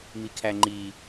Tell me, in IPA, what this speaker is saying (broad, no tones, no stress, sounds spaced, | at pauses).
m i kʰ æ ŋ͡ǃ i